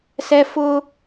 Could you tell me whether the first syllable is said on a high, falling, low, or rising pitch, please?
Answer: high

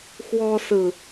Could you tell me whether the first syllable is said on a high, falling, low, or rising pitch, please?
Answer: high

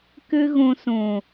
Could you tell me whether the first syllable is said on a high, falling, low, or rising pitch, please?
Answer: high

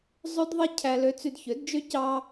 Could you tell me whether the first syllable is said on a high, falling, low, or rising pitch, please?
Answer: high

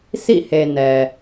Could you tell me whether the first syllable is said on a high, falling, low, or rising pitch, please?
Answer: falling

